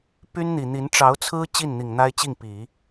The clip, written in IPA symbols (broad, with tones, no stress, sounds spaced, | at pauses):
p y˥ n n̪ i˨˩ n̪ i˧˥ n ʈ͡ʂ ɑ˧˥ ʊ̯ t͡sʰ ɹ̩˥ t͡ɕ i˥˩ n n̪ i˨˩ ŋ n̪ a˥ ɪ̯ t͡ɕ i˥˩ ŋ p i˨˩˦